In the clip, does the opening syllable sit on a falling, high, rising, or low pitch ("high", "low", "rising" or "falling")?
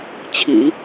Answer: low